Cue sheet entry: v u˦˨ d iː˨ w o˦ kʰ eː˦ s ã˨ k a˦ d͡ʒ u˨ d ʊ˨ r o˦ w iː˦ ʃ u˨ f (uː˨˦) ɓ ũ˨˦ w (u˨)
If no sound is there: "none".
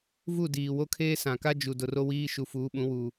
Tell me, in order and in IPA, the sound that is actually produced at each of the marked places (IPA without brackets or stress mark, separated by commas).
uː˨˦, uː˨